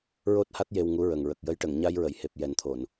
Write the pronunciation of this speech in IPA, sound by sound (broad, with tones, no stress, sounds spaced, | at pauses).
ɹ o˦˥ t̚ h a˦˥ t̚ j e˧ w ŋ u˧˥ ɹ ə˨˩ ŋ ɹ ə˨˩ k̚ j ə˧˥ j ʈ ə˨˩˨ ŋ ɲ a˧ j ɹ ə˨˩˨ j h e˨˩ p̚ j ɛ˨˩˦ n t̪ʰ o˨˩˨ n